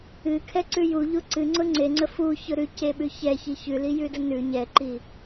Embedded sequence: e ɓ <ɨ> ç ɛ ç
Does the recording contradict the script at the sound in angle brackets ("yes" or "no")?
yes